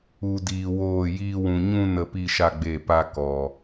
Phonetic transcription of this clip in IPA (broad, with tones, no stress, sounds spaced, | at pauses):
u˧ d iː˧ w oː˦˨ j iː˦ w ũ˧ ɲ ũ˦ n ə˧ p i˦ ʃ a˦ ɡ͡b e˦˨ p a˦ k ɔ˨